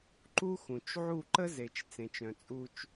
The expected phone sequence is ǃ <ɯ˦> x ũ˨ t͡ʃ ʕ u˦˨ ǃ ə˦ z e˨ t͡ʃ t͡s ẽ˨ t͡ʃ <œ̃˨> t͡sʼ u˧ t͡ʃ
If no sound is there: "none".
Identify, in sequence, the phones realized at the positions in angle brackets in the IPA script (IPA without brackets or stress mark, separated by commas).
u˦, œ̃˨